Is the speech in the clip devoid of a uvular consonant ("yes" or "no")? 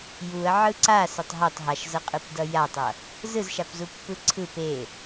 no